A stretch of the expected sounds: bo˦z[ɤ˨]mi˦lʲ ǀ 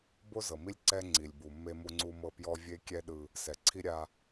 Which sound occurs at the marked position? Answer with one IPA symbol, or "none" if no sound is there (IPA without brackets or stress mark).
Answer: ɤ˨